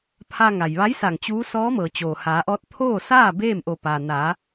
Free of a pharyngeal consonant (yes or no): yes